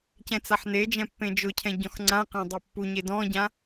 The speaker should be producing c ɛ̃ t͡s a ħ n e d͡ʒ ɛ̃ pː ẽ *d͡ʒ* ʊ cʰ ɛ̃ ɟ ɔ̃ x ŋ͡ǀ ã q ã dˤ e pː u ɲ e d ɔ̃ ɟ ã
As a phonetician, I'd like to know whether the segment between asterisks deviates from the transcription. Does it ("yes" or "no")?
no